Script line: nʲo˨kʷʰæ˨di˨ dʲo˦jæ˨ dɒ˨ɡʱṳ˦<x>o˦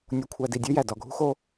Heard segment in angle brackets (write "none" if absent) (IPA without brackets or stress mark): x